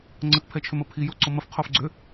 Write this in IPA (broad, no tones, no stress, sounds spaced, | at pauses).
ŋ͡ǀ ə t pʰ ɛ t͡ʃʰ ʏ m ə pʰ i j o ǀ o m ə f qʰ o f ɡ͡ǀ ʏ